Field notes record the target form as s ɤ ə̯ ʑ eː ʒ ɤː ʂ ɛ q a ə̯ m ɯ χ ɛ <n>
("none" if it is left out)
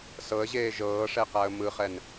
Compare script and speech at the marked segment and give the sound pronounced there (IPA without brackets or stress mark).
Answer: n